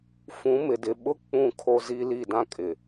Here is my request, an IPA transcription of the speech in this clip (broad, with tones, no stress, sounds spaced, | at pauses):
f ũ˨˦ m ɪ˨ d ɪ˨ ɓ ʊ˦ k͡p ũ˦˨ kʰ o˦ z i˦ l i˦˨ d ã˦ kʼ ɪ˨